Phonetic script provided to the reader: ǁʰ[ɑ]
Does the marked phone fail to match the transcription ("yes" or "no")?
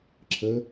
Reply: yes